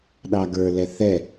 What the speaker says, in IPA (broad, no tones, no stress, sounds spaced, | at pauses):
ɗ ɑ ɡ ə˞ l ɛ θ ɛ